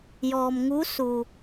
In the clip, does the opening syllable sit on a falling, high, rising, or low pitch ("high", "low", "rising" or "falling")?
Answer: low